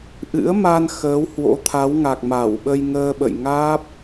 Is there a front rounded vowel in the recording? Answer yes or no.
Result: no